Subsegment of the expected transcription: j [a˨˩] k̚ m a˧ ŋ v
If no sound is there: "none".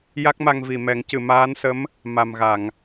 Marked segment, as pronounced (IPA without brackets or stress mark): a˦˥